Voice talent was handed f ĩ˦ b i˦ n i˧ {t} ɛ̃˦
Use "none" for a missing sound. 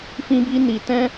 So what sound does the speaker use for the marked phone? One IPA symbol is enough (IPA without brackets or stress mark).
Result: t